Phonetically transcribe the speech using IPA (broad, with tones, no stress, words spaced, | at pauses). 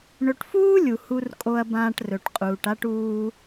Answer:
ɳɵ˨ʈfuː˥lʲu˩ hu˨rkʼo˨ɐ̯bãː˨ʈ rɵ˨ʈqʼuː˨ʈa˥ʈ uː˦